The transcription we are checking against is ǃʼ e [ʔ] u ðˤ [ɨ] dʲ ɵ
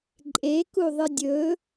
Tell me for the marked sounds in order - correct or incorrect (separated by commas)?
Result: incorrect, correct